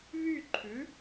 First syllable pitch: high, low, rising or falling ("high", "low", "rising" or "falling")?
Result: falling